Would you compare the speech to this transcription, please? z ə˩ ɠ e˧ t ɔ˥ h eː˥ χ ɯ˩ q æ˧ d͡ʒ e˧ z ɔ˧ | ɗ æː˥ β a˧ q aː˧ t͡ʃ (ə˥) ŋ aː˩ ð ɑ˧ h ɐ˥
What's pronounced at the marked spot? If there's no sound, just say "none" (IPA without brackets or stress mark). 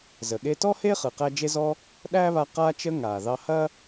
ə˧